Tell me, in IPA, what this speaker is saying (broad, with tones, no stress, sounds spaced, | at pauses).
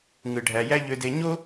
ŋ ɯ˩ ɖʱ æ˩ j æ˥ ʎ ø˧ d e˧ ɲ o˥